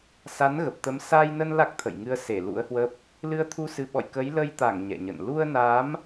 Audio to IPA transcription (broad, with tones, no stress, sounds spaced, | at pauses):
s a˨˦ n ɣ ə˨˩ p̚ t̪ ə˨˦ m s a˧ j n ə˧ n l a˦˥ k̚ t̪ʰ ə̰˧˨ j ŋ ɨ˧ ə̯ s e˧˩ l ṵ˧˥ ə̯ h w ə˦˥ p̚ | l ɨ˧ ə̯ t̪ʰ u˧ s ɨ˨˦ ɓ ɔ̰˧˨ j k ə˨˦ j l ə˧ j t̪ a˧˩ ŋ ɲ ɛ̰˧˨ ɲ ə̰˧˨ n l u˧ ə̯ n a˨˦ m